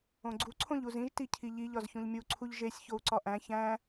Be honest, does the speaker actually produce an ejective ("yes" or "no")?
no